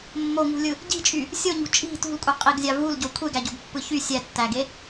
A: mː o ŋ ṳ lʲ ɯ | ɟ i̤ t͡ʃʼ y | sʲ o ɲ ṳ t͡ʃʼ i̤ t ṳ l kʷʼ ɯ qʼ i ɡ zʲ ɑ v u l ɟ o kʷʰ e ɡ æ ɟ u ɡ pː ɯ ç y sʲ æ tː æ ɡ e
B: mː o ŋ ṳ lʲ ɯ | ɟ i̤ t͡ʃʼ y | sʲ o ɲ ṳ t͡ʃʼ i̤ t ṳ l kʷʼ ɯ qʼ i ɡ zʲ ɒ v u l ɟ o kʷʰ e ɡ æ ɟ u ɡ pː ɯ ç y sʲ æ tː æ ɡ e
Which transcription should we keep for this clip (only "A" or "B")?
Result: A